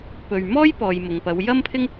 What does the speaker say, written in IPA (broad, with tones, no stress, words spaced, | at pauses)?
pɵ˨ɥmɔː˥jpɔː˨j mʊ˨ŋpɐ˨˧w jɐ˥mpʰɪ˥ŋ